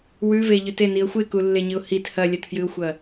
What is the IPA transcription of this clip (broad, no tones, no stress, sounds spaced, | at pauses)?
w ʉ v e ʎ ʉ t e n i ə̯ xʷ e k u lː e ɲ ɨ ʊ̯ h i t h ɐ lʲ ɐ t f j ɨ ʊ̯ xʷ ɐ